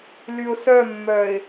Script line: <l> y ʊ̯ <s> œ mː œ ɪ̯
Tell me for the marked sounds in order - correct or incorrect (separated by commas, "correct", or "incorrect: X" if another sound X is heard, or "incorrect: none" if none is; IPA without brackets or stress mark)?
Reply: correct, correct